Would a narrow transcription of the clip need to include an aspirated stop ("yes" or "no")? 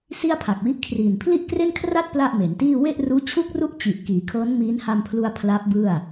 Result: yes